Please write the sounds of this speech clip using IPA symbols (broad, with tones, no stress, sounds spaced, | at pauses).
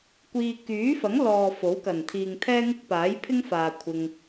kʷ iː˨ k yː˨˥ f ɐ˨˥ ŋ l ɔː˨ f o˨˥ w k ɐ˨˩ n t̪ʰ iː˨ ŋ t̪ʰ ɛː˥ ŋ ɪ˥ k̚ p aː˨˥ j pʰ ɪ˥ ŋ f aː˨ kʷʰ ɪ˧ ŋ